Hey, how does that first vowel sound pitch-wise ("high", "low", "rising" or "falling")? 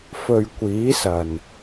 low